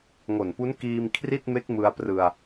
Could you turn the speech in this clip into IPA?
ŋo˨˩npu˦˥n kiː˧m kʰri˥˩t̚me˦˥k̚mɯ˧a̯prɯ˧a̯

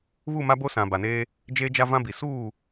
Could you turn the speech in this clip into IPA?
βu˦˨ma˦ bo˦sã˨ ba˨neː˦ | d͡ʒeː˦d͡ʒa˦vã˦bi˨ suː˦˨

